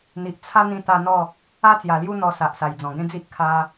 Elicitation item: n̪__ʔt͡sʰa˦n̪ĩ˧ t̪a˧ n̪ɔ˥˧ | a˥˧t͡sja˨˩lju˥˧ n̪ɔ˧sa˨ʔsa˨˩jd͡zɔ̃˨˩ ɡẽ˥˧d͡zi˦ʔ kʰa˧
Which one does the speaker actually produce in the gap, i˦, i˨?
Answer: i˨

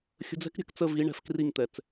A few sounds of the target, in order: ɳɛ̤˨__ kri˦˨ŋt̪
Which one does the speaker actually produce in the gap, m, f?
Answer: f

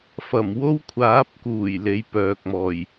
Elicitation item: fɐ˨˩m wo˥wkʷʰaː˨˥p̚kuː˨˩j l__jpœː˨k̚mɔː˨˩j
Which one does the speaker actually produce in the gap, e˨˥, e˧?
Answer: e˨˥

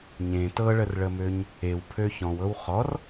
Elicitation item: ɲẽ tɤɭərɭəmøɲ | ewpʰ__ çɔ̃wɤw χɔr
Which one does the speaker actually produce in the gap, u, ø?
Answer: ø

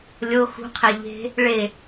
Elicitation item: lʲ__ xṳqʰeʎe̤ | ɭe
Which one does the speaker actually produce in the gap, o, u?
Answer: o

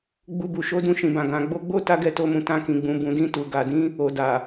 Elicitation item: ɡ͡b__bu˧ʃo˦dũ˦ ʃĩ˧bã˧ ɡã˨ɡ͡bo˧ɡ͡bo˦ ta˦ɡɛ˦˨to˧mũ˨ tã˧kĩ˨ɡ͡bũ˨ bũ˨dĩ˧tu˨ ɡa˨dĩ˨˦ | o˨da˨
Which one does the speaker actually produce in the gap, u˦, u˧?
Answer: u˦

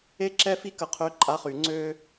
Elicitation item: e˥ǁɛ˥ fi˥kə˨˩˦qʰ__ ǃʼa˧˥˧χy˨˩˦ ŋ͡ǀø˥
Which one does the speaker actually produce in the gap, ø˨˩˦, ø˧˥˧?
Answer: ø˧˥˧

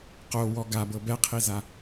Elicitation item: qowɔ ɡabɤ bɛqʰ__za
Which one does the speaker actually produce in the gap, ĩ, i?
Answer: i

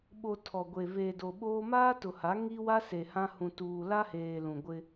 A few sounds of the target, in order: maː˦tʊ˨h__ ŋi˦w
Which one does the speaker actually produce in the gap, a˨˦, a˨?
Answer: a˨˦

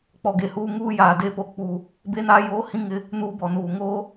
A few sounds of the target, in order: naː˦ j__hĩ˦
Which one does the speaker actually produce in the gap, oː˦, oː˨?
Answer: oː˦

